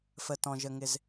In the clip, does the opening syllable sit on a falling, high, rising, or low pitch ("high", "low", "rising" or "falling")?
low